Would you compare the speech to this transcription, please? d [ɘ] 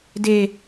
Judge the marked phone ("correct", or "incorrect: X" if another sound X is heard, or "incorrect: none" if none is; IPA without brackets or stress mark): incorrect: e